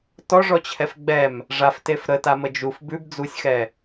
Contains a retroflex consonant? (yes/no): yes